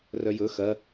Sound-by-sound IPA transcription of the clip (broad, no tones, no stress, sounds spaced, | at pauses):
r œ j ɵ x ɐ